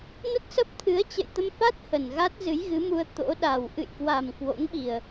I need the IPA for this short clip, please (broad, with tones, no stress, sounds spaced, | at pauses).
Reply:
n ə˦˥ t̚ s ə˦˥ p̚ t̪ʰ ɨ˨˦ ə̯ t͡ɕ ə̰˧˨ j t̪ ə˧ m f a˦˥ t̚ h ə˨˩ n ɣ a˦˥ t̚ z ɨ˨˦ j ɣ ɨ˨˦ m u˧ ə̯ t̪ o̰˧˥ ɗ a˨˩ w ʔ ɨ̰˧˨ j k w a˨˩ m k w o̰˧˥ ŋ ɓ i˨˩ ə̯